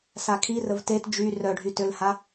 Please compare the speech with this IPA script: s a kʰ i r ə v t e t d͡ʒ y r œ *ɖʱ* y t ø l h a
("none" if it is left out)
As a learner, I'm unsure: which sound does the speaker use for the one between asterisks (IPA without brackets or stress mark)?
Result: ɖʱ